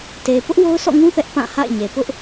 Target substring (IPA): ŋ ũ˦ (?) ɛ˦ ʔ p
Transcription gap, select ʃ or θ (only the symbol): θ